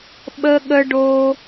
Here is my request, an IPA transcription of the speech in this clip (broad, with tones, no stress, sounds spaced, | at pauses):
ɓ ə˥ ɠ ə˥ ɖ o˥